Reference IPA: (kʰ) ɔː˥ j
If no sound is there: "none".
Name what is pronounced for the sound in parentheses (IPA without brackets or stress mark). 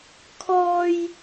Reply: kʰ